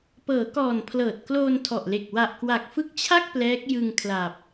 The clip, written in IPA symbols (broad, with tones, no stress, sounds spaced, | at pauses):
p ɤː˩˦ k ɔː˨˩ n pʰ l ɤː˨˩ t̚ k l oː˧ n tʰ ɔ˨˩ ʔ l e˨˩ k̚ w a˨˩ ʔ k w a˨˩ k̚ f ɯ˦˥ k̚ t͡ɕʰ a˥˩ k̚ p l ɛː˦˥ k̚ j ɯ˧ ŋ kʰ l a˨˩ p̚